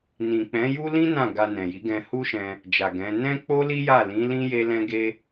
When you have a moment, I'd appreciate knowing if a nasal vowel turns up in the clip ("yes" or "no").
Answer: yes